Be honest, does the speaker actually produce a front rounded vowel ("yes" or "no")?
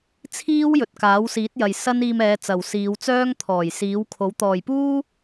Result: yes